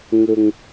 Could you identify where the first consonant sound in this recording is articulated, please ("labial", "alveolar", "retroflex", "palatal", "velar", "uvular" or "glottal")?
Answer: velar